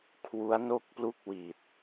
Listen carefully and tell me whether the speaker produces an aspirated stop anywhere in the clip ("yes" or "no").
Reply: yes